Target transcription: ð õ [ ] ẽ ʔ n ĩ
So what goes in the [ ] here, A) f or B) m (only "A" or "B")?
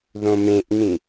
B